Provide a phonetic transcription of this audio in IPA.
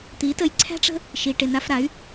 t̪ i˨˦ t ə˧ j ǀʰ æ̤˦ ʈ͡ʂ ə̤˦ | ʃ i˨ ʈ ɪ˨ n a˧ f ɾ a˨˦ y̯

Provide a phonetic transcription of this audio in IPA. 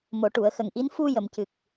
m o˨˩˨ ʈ u˨˩˨ ə̯ x ə˨˩ ŋ ʔ i˧˥ n f u˧ j ə˨˩˨ m c ɨ˨˩ k̚

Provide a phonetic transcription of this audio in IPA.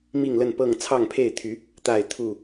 m i˥˨ ŋ l ə˥˨ n p ɤ˥˨ ŋ t͡sʰ ɑ˥˨ ŋ pʰ e˥˨ ɪ̯ t̪ʰ y˨˦ | t̪ a˥˨ ɪ̯ t̪ʰ u˥˨

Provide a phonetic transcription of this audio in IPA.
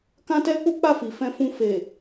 k ã˦ t ɛ˦ k͡p u˦ k͡p a˦˨ f i˨ f ɛ̃˧ f ũ˧ f e˨

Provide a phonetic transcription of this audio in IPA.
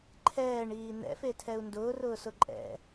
ǃʰ ɛː ɳ iː n̪ ɛ̰ f e tʰ ɛ u̯ n d ʊː r ʊː s ʊ ǃʼ ɛ̰

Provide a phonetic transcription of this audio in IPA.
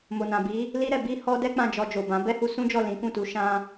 m o˨ n ã˨ b i˨˦ | l i˦ ɾ ɛ˧ b i˦ h ɔ˦ d ɛ˦ k͡p ã˦˨ d͡ʒ ɔ˧ d͡ʒ o˨ b ã˨˦ b ɛ˦ h u˧ s ũ˦ d͡ʒ ɔ˦˨ l ĩ˨˦ k ũ˦˨ t u˨˦ ʃ ã˦

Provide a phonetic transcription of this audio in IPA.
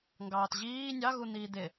ŋ ɡ ɑː t ʑ iː nʲ ɑ ɣ u n̪ iː d̪ ɪ

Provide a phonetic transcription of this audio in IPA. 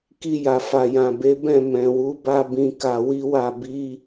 k i˧ j a˨ f a˨ j ã˨ b e˨˦ b ɛ̃˦˨ m ɛ̃˨ w u˨˦ b a˧ b ĩ˧ k a˧ w i˦ w a˦˨ b i˧

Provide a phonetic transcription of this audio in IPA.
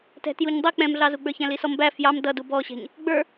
t ɛ̤ t j u ɲ dˤ i k͡p ɛ̃ m ɮ ɑ z u ɡ͡b ə˞ ç æ̃ l i s ɔ m b æ f j ɑ m d ʌ d u b ɔ ɕ ɛ̤ ɲ | ɡ͡b ə˞

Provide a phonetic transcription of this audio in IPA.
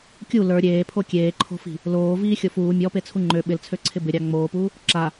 kʲ u l ə˞ ɾʲ eː pʰ o kʲ eː ǃʰ o̤ f i̤ | l oː v iː xʲ o f uː mʲ ɔ p e t͡sʰ u ŋ͡ǃ ø ɓ ɪ l t͡sʰ ø ǀʰ ɪ b ɪ ɾʲ ɑ ŋ͡m oː p uː | ǁ a

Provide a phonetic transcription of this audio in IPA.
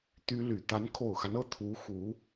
t̪ y˥ l y˨˩ t̪ a˧˥ n kʰ o˨˩ ʊ̯ x a˦ n ɤ˥˩ t̪ʰ u˧˥ x u˧˥

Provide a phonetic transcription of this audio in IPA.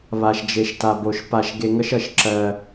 β a˨ ʃ d͡ʒ e˨ ʃ t a˨ b o˨ ʃ p a˨ ʃ ɡ e˨ ŋ ʌ˦ ʃ ʌ˨ ʃ ǁ ɜ˦

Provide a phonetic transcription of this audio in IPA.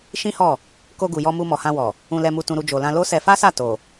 ʃ ĩ˦ h ɔ˦˨ | k o˧ ɡ u˨ j ɔ˧ m u˧ m ɔ˨ h ã˧ w ɔ˨ | ũ˨ l ɛ˨ m u˨ t ũ˧ ɾ u˧ d͡ʒ o˨ l ã˧ l o˦ s ɛ˧ f a˦ s a˦˨ t o˨

